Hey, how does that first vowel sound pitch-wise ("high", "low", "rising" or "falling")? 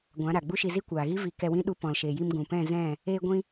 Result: rising